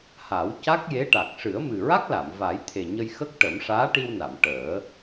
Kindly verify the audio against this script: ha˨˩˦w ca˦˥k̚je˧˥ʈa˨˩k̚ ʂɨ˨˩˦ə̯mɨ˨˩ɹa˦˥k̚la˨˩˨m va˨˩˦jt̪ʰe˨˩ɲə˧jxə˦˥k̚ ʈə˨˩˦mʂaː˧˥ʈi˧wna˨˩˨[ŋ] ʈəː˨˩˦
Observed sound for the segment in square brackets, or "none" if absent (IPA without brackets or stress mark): m